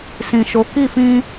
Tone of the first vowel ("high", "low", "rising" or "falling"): low